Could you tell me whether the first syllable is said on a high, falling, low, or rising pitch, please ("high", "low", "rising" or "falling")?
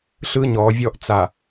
high